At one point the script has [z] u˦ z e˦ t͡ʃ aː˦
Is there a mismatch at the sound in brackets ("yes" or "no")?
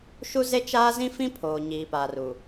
yes